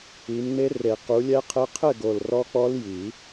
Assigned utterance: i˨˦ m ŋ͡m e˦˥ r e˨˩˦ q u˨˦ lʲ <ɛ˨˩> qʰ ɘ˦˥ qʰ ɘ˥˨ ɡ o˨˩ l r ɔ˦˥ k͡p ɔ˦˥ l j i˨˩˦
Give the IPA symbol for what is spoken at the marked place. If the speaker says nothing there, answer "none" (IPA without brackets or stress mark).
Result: ɛ˦˥